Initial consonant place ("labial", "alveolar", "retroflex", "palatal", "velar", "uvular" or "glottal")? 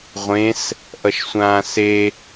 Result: uvular